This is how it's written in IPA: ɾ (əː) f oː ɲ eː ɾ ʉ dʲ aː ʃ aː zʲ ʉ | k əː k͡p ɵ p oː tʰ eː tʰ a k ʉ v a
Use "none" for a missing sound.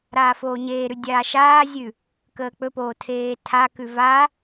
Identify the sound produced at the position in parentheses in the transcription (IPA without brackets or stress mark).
aː